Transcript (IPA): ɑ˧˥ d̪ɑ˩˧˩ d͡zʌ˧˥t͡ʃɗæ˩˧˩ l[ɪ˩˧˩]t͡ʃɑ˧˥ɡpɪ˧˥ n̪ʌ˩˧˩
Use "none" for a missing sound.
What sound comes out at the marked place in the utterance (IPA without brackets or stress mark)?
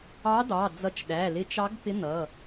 ɪ˧˥